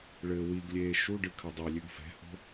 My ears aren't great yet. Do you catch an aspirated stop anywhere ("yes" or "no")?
yes